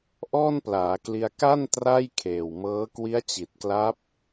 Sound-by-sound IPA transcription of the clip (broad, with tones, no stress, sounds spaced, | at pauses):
ʔ ɔː˥˩ n p l aː˩˦ k l i˧ a̯ k a˥˩ n t r a˥˩ j kʰ eː˨˩ w m ɤː˦˥ k w i˦˥ a̯ t͡ɕ i˨˩ t̚ k l a˦˥ p̚